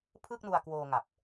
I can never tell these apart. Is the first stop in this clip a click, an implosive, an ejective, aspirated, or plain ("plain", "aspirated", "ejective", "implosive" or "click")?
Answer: aspirated